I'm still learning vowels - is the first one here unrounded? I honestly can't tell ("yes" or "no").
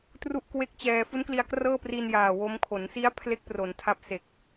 no